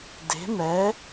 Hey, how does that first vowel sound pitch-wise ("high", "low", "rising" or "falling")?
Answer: rising